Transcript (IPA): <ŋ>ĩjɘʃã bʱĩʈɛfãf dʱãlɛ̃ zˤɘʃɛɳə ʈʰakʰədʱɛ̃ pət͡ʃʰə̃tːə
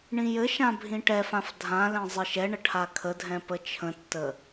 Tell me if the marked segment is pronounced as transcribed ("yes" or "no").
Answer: no